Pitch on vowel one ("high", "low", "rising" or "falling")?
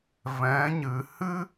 rising